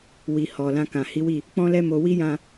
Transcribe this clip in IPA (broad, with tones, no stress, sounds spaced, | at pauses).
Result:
w i˨ h ɔ˨ l ã˧ k ã˨ h i˨˦ w i˦˨ | k͡p ɔ̃˦ l ɛ˦ m o˧ w i˦ j ã˧